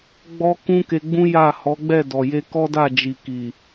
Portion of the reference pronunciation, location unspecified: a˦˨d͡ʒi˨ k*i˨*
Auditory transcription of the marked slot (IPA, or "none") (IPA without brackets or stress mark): i˨